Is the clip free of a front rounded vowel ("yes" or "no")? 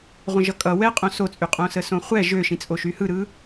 no